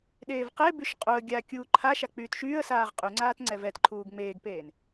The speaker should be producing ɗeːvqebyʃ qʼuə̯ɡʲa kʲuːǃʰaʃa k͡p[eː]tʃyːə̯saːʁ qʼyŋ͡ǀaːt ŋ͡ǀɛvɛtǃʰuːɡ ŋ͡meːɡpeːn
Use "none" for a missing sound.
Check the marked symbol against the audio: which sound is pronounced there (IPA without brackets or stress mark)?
yː